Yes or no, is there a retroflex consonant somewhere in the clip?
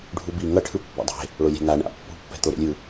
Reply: yes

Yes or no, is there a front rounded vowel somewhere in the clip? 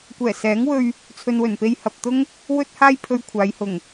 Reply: no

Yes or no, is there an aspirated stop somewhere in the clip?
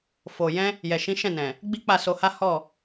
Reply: no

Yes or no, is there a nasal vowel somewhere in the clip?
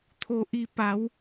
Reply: no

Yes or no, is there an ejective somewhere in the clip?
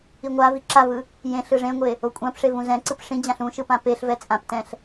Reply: yes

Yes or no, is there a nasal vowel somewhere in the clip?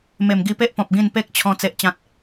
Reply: yes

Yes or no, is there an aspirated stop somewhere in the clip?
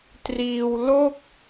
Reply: no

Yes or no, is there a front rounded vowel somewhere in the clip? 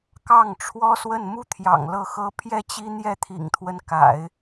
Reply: no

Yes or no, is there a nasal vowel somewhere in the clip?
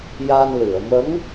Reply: no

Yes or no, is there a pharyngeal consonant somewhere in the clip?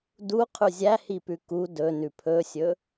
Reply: no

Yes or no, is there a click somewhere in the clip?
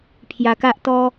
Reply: no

